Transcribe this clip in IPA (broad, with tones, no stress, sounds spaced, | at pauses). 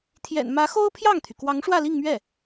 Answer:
t̪ʰ j ɛ̰˨˩ n m ä˧˥ x o˥ ʊ̯ pʰ j ɑ˥˩ ŋ t̪ʰ y˩ k w ɑ˧˥ ŋ ʂ w ä˥˧ l i˥˧ ŋ m ɥ ɛ˥˩